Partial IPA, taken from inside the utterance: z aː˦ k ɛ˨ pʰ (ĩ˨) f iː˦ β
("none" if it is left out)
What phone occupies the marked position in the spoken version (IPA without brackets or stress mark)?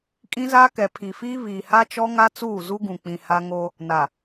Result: i˨